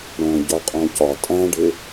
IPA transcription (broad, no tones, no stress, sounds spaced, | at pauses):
ɽ õ ɟ ɒ qʼ õ c ɒ tʼ æ̃ ɖ ɪ